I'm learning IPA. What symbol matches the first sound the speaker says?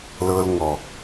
l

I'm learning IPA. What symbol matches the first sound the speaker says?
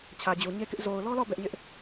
t͡ɕʰ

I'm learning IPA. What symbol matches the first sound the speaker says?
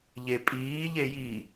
ʎ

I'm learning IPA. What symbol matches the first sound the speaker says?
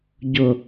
ɟ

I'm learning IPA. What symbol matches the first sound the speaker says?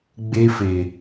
ɡ͡b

